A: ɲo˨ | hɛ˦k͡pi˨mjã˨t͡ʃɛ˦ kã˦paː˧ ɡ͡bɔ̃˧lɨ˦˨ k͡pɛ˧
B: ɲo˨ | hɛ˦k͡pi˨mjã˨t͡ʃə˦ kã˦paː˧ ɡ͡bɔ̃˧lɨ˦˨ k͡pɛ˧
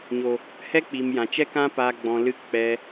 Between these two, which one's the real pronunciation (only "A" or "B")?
A